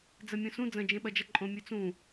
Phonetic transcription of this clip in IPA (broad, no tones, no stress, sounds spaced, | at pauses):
d͡z ɐ mʲ õ s ũ d͡z ɐ̃ d͡ʒ ẽ ɓ ɐ d͡ʒ ɐ ǃʼ õ mʲ ɵ t͡s ũ